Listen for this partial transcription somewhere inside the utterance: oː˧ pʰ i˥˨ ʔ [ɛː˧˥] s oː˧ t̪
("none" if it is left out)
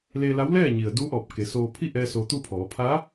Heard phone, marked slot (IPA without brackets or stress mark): ɛː˧